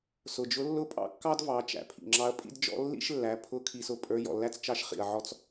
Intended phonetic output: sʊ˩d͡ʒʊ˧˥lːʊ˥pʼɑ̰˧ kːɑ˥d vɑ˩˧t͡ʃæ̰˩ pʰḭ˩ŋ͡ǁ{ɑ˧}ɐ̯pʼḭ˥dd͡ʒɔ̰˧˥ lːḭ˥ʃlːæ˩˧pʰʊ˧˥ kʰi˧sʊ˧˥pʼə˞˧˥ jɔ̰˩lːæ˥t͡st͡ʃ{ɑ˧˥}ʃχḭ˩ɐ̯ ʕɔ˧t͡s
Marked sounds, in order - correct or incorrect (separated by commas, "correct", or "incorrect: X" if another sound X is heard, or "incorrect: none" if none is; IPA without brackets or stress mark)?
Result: correct, correct